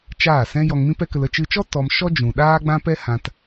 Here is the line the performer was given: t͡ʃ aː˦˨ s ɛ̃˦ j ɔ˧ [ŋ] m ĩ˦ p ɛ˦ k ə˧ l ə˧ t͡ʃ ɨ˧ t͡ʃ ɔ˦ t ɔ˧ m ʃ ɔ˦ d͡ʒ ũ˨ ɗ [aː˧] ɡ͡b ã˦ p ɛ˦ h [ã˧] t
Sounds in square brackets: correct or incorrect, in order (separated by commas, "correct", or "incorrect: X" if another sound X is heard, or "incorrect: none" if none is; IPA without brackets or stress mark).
correct, incorrect: aː˦, correct